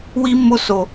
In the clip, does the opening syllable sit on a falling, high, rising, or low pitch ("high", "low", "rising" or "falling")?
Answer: high